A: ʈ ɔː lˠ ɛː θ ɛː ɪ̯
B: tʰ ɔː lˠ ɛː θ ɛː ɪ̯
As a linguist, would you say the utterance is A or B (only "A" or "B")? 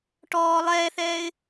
A